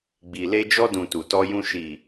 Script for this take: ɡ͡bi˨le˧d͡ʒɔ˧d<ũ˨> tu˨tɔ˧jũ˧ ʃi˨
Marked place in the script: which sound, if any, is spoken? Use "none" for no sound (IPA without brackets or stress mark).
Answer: ũ˨